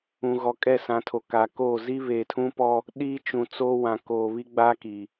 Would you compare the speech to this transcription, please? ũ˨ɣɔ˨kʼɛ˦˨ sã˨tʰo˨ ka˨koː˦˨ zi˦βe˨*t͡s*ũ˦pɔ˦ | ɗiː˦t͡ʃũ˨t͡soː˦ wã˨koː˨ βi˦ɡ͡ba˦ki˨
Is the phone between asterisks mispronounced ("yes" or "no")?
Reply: yes